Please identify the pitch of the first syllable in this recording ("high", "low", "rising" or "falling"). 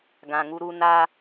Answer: low